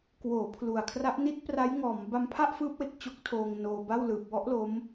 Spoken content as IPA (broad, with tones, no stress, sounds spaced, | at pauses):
k w oː˩˦ pʰ l u˨˩ a̯ kʰ r a˦˥ ʔ n i˦˥ t̚ p r a˦˥ j ŋ ɔː˩˦ m b a˧ m pʰ a˥˩ ʔ f ɯː˦˥ p̚ w e˨˩ k̚ t͡ɕ o˦˥ k̚ tʰ oː˧ ŋ n oː˧ b a˥˩ w l ɯː˨˩ p̚ w ɔ˦˥ ʔ l o˦˥ m